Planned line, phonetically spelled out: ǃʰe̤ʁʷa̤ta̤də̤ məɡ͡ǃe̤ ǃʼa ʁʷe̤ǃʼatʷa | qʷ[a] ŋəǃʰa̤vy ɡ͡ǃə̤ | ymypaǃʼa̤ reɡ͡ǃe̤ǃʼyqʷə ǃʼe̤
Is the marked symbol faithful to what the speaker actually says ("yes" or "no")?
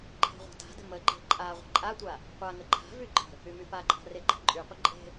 yes